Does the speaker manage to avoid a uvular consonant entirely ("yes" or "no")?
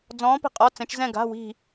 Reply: no